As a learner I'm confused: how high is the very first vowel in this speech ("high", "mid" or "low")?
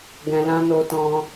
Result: mid